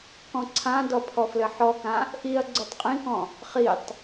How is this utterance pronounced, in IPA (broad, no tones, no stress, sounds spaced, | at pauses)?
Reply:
k ɔ̃ ǀʰ ã d ɔ pʰ ɔ f l ɘ ħ ɔ k ã | ʔ i ɐ̯ ɡ͡ǀ ʉ tˤ qʼ ĩ k ɔ̃ | χ i tˤ